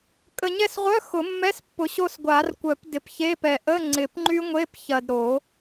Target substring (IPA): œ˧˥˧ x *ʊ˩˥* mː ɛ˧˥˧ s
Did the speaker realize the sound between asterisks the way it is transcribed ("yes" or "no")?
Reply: no